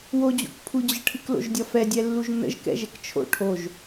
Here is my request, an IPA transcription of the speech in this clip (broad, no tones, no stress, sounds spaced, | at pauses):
w o d͡ʑ o̰ k pʰ u d͡ʑ ə ʈʰ ɨ k l o̰ ʒ dʲ ɒ f ɛ dʲ ɛ lː u ʒ n ə̰ ʒ k ɛ̰ ʒ ɛ k t͡ʃʰ o̰ ʈʰ o ʒ